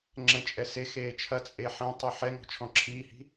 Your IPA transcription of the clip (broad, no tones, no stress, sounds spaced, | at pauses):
ŋ͡ǁ ɛ̃ t͡ʃʼ ɛ s e x eː t͡ʃʰ ɐ t͡sʼ e ħ ɛ̃ tˤ y ħ ɛ ŋ ɔ̤ t͡ʃʰ ɔ̃ ǁʰ iː h i̤